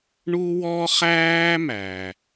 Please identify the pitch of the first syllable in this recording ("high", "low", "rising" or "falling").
high